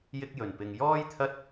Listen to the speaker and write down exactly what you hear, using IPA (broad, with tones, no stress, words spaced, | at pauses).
jɪ˥k̚jɵ˨npɪ˧ŋ jɔː˥j t̪ʰɐ˥t̚